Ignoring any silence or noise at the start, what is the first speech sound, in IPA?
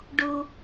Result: ɖ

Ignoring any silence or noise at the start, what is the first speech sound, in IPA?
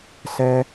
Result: s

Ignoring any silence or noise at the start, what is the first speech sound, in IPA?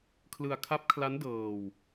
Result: kʰ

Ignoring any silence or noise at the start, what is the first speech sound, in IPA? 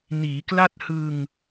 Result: n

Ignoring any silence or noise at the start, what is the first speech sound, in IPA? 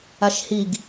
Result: a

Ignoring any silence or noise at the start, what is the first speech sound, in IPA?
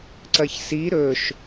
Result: ǀ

